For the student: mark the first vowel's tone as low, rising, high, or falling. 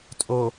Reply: low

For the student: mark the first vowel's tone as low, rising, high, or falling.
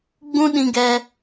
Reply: high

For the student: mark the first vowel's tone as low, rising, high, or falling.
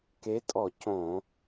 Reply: rising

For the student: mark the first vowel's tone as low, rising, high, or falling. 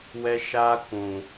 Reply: high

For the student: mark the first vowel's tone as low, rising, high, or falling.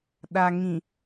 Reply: low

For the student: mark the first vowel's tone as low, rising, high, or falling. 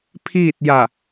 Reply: falling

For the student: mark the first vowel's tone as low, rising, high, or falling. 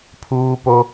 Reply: high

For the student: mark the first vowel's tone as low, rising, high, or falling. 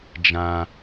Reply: high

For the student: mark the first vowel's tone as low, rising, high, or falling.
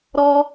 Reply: high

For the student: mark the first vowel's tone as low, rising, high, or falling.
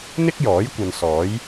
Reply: high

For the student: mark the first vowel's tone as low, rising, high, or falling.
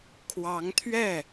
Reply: rising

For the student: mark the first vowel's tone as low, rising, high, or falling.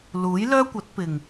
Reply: rising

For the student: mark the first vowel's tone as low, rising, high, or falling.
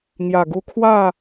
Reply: low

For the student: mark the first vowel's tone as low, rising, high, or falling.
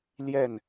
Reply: falling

